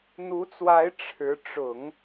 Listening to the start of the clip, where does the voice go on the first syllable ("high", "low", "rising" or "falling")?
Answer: rising